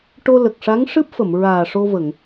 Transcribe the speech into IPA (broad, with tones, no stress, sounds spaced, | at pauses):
ʈ o˧ l ə˨˩ k̚ ʂ a˧˥ ŋ ʂ ɨ˦˥ p̚ f ə˨˩˨ m ɹ aː˨˩ ʂ o˧ v ə˨˩˨ ŋ